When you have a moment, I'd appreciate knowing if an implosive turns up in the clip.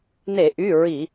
no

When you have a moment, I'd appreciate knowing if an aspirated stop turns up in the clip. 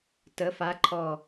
yes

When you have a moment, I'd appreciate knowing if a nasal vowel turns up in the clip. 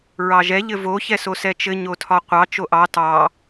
no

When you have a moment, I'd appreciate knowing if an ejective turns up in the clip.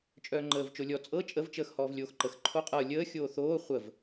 yes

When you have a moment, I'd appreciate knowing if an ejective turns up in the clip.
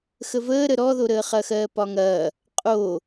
yes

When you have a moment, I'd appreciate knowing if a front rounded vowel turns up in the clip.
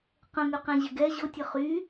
yes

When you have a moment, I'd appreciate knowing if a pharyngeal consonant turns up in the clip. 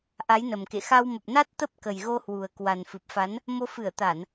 no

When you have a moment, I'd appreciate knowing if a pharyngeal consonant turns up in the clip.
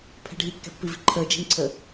no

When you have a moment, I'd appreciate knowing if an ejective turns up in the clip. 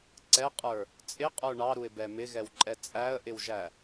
yes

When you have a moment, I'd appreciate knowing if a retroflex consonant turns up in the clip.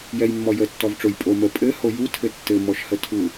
yes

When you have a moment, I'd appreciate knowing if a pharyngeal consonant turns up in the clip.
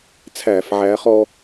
yes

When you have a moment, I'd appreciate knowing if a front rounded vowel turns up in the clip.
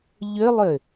yes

